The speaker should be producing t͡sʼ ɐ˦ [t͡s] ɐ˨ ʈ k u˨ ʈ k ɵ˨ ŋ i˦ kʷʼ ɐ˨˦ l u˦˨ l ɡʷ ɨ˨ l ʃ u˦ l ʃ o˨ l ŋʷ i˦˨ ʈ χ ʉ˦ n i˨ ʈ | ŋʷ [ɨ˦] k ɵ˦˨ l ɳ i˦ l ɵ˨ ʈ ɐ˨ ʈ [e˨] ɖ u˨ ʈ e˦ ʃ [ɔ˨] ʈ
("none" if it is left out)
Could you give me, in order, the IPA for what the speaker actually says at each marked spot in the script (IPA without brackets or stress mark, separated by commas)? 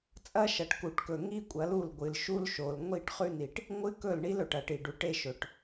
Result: ʃ, ɨ˦, i˨, ɵ˨